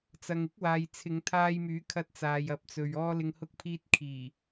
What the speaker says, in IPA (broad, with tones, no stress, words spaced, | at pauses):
t͡sɐ˨ŋɪ˥k̚waː˨j t͡sʰɪ˨˧ŋt̪ʰaː˧jmyː˨˥ kʰɐ˧t̚t͡saː˨j ɐ˨p̚t͡sɵ˨ɥ ɔː˥lɪ˧ŋhʊ˥k̚ pʰiː˧t̚ kʰiː˨˩